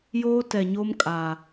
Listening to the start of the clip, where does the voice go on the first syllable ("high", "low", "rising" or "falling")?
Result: high